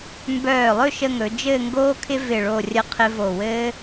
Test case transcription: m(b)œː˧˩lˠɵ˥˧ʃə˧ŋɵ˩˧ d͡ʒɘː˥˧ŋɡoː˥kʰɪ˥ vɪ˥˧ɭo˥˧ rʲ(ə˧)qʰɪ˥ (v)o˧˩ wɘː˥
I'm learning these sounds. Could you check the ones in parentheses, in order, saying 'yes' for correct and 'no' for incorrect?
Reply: yes, no, yes

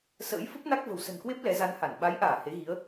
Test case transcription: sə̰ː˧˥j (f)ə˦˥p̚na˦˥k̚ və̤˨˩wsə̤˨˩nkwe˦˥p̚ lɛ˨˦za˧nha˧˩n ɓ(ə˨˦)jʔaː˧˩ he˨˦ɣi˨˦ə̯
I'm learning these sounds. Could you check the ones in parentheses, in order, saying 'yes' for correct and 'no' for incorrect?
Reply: yes, no

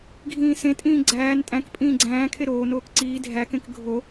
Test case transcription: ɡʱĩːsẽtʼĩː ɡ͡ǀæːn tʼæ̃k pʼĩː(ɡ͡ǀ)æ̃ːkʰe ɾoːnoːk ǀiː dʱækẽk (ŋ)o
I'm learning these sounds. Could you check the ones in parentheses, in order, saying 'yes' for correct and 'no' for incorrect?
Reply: yes, no

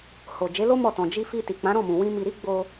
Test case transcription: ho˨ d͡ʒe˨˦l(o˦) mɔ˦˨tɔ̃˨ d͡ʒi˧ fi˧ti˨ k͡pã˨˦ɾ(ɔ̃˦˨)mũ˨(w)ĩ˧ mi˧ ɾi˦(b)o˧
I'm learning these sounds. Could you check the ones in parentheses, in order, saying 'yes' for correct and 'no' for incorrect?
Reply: yes, yes, yes, no

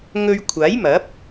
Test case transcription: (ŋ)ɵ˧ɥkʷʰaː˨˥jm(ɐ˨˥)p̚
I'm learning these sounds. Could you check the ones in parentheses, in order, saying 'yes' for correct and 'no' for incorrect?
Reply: yes, yes

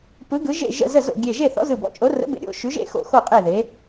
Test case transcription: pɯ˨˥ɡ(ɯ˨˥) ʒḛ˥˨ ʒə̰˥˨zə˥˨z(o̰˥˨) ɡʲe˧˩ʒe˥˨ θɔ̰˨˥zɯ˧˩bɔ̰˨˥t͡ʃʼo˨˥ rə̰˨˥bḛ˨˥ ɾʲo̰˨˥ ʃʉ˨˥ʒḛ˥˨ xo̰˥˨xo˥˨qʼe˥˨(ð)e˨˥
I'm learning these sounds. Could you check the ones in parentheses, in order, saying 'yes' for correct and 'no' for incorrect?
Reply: yes, yes, yes

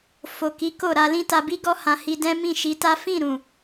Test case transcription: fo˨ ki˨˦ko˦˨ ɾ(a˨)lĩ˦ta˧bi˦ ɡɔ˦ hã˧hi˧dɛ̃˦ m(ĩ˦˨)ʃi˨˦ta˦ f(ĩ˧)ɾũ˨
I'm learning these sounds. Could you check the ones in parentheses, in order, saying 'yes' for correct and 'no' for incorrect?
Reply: no, yes, no

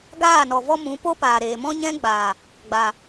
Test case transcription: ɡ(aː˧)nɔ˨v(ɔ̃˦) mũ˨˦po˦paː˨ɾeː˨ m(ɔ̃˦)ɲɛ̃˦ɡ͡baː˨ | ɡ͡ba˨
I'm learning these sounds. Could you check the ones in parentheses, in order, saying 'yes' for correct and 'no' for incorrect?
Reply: no, no, yes

